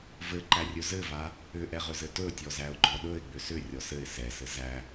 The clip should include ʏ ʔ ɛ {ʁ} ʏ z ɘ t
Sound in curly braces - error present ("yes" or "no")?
no